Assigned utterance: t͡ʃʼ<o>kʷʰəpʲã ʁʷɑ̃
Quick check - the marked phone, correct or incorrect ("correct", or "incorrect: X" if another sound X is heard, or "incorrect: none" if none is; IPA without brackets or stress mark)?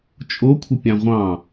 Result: correct